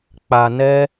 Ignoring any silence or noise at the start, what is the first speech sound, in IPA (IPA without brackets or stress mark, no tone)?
k͡p